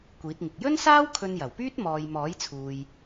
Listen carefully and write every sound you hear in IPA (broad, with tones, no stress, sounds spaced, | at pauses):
kʷ iː˨˥ t̚ ŋ ɪ˨ k̚ j ɵ˥ n s aː˥ w kʰ ɵ˧ n j ɐ˨˩ w p yː˥ t̚ m ɔː˨ j m ɔː˨˥ j t͡sʰ uː˨ j